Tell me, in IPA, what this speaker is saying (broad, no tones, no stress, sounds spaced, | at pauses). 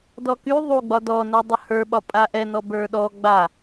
d ɔ k y ðˤ u ɡ͡b ɒ d ɔ n ə˞ dˤ ə h ə˞ ɓ ɒ pʼ a ʔ ɛ n ɔ b ə˞ ɗ ɔ ɡ͡b a